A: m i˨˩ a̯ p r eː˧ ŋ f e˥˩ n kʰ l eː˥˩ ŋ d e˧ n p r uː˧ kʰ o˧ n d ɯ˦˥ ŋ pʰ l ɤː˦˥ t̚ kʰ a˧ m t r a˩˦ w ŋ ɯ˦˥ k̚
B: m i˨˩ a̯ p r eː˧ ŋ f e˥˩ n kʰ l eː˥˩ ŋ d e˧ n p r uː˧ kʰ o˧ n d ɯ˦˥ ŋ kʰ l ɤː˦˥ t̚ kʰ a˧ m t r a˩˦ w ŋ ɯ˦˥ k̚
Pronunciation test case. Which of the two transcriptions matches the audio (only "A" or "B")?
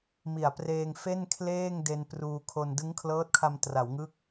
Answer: B